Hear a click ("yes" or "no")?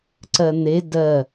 yes